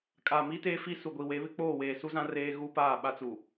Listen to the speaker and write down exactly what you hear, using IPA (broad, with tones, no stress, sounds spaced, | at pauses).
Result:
kʼ a˨ m i˦ t e˦ f i˦ s u˨ ɡʷ i˨ w e˨˦ β ɪ˦ k͡p oː˦˨ w eː˨ s u˦ z ã˦ r eː˦ ɣ u˦ p aː˦˨ ɓ a˦ t͡s u˨